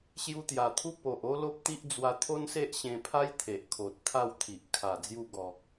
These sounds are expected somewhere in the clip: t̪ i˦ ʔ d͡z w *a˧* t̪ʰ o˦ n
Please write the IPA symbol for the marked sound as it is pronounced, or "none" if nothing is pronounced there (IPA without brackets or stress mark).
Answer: a˧